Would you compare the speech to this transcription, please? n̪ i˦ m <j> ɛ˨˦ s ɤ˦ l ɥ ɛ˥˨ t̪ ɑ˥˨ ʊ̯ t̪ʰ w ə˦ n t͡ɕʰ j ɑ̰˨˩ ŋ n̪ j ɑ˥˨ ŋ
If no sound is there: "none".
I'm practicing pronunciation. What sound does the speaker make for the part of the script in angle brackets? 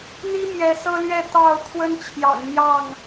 j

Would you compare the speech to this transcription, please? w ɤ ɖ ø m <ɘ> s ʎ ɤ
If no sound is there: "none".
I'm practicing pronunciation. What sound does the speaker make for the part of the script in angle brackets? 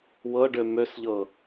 ø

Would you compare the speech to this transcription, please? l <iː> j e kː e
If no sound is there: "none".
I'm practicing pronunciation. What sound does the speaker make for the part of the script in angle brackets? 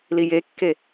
i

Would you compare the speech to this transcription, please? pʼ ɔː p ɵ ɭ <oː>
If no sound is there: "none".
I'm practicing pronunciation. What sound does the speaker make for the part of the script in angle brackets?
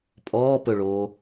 oː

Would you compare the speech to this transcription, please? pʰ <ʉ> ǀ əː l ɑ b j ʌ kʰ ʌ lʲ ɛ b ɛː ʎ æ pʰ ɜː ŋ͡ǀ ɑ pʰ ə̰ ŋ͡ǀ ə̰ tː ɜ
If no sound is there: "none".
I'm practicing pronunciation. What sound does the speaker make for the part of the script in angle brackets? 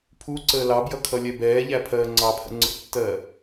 u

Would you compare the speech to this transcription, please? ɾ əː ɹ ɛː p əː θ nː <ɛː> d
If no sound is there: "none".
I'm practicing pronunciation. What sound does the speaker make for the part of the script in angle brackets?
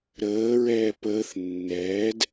ɛː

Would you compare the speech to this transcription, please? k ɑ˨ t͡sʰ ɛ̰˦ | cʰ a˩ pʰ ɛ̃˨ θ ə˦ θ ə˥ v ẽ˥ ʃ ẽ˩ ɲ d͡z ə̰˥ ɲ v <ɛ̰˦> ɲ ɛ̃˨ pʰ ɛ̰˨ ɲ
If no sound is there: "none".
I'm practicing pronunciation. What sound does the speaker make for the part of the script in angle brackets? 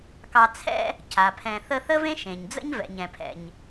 ɛ̰˨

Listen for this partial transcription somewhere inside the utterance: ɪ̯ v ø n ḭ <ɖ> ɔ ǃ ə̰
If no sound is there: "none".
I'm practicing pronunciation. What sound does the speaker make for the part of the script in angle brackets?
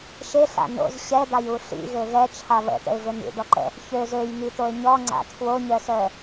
ɖ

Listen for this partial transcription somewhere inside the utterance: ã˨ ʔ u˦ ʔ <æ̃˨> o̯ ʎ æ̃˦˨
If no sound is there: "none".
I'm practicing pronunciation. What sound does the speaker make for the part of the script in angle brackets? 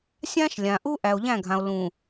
æ˨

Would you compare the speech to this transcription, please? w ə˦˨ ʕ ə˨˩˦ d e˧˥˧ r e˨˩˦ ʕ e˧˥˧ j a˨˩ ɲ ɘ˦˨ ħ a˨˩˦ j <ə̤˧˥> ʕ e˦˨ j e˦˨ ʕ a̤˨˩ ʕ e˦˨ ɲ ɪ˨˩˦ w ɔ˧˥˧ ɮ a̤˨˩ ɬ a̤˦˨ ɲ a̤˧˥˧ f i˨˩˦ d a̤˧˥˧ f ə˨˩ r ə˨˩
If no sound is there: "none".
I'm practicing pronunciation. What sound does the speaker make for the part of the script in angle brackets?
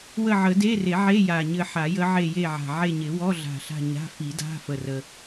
ə˧˥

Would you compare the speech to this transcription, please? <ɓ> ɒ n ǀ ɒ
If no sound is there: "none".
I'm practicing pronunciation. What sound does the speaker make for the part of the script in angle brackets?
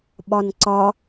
ɓ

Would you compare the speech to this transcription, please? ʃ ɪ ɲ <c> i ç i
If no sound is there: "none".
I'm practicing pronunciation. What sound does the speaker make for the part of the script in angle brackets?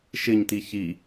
t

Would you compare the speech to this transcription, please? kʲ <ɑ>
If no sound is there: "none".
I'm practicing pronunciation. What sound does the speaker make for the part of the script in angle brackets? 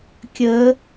ə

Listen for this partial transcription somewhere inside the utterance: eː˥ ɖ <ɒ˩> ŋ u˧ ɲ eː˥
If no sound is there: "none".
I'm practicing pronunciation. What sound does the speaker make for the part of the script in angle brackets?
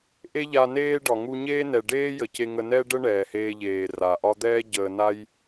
ɒ˩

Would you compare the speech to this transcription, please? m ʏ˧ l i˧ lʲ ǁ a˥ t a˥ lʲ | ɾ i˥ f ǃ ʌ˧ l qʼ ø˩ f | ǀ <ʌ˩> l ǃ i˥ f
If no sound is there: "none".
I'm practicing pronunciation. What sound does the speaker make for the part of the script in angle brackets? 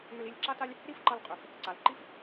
a˩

